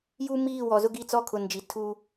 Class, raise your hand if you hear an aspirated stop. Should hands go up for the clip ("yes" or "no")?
yes